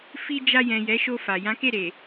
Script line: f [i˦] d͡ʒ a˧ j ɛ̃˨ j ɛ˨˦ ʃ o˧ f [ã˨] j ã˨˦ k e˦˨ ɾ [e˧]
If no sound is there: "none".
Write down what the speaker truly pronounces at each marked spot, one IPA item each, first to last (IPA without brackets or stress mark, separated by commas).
i˧, a˨, e˨